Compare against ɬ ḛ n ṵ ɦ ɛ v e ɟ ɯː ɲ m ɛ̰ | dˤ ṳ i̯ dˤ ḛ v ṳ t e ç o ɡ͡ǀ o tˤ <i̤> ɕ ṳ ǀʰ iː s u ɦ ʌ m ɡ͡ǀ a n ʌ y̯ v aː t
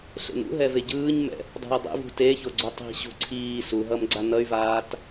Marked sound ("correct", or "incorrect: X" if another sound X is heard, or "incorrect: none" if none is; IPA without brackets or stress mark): correct